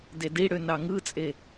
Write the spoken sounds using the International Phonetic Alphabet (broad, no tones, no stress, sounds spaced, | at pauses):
d e d i ɽ ø n ɑ ŋ ɯ t͡sʼ e